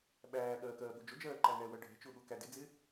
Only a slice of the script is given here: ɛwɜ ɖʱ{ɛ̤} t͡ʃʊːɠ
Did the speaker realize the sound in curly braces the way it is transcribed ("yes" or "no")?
yes